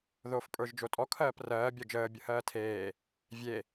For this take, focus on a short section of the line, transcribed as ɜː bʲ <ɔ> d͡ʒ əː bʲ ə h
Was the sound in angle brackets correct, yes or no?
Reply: yes